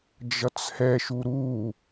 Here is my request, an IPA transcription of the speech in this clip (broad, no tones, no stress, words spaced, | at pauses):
d͡ʒʌt͡shɛʃu ɾu